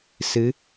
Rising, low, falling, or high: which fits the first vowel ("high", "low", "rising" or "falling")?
rising